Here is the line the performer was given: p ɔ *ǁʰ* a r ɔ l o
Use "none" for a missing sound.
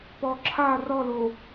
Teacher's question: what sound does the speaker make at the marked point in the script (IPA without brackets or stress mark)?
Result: ǁʰ